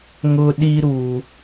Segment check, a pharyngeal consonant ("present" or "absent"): absent